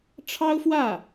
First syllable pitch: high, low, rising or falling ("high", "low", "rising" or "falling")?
high